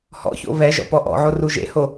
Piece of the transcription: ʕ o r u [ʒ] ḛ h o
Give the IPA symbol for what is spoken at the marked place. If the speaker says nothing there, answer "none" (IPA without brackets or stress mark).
ʒ